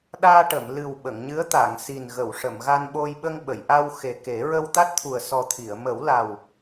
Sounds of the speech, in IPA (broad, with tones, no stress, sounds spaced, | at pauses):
ɗ aː˧ ʈ ə˨˩˨ m l ɨ˨˩ w ɓ ə˨˩˨ ŋ ɲ ɨ˧˥ ə̯ t̪ a˨˩˨ ŋ s i˨˩ n ɣ ə˨˩˨ w ʂ ə˨˩˨ m ɣ a˧ n ɓ o˧ j ɓ ə˧ ŋ ɓ ə˨˩˨ j ʔ a˧ w x e˨˩ k e˨˩˦ ɹ ə˧ w t̪ a˦˥ t̚ t̪ʰ u˨˩ ə̯ s ɔ˨˩ t̪ʰ i˨˩˨ ə̯ m ə˨˩˦ w l a˨˩ w